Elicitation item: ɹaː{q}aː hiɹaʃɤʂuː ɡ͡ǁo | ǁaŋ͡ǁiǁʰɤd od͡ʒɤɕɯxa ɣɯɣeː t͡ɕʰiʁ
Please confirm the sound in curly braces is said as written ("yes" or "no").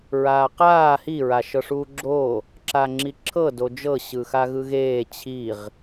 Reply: yes